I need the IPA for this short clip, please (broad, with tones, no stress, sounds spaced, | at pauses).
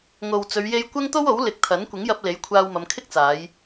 ŋ o˨ w t͡s ɵ˨˧ ɥ j e˧ j kʷ ɐ˥ ŋ t̪ o˥ w o˨˥ w l ɪ˨˥ k̚ t̪ʰ ɐ˨˥ n kʷ ɪ˨˥ ŋ j ɐ˧ p̚ l e˨˥ j kʷʰ aː˧ w m ɐ˨˧ m kʰ ɪ˥ k̚ t͡s aː˨˧ j